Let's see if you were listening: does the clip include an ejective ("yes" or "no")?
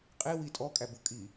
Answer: yes